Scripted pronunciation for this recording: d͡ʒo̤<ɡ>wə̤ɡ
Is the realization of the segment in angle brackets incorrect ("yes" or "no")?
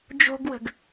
no